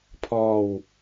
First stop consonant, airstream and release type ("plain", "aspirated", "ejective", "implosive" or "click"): aspirated